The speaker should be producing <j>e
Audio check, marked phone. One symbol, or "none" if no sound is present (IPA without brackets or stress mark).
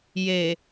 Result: j